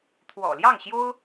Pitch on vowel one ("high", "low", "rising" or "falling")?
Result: low